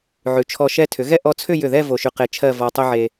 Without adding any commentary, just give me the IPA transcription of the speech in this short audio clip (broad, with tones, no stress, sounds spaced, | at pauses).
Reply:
ʕ ʉ˩˧ t͡ʃʰ ɔ˧ ʃ ɛ˧ tʰ ʏ˩˧ ɣ ɛ˥˧ ʔ ɔ˧ t͡sʰ ʏ˥˧ j ʏ˧˩ ð ɛ˥˧ v o˧ ʃ ʉ˧ q e˧ t͡ʃʰ ɜ˥˧ v ɔ˧ tˤ ʏ˥ ʕ e˧